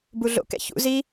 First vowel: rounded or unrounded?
rounded